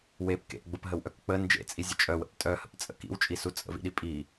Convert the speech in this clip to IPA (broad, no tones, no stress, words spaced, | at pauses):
wep kḛʔɡ͡bəpɦəwʔœk k͡pə nd͡ʒḛt͡sʼizʲə t͡ʃʼœwə̰p tʼœhə̰pt͡sʼə̰ kḭwt͡ʃʼisu t͡sʼə̰vḭɗi pʼi